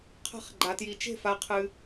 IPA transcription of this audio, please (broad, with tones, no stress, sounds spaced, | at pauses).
qʰ a̤˥˧ χ ɡ͡ǃ a˧ t j i˧ t͡ʃ e̤˥˧ f a˧ qʰ ɨ˧